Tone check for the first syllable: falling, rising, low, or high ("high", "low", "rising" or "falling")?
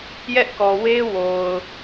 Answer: high